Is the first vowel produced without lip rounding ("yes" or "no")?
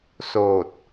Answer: no